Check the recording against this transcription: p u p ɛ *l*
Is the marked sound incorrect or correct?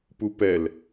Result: correct